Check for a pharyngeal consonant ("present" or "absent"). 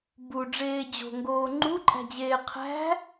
absent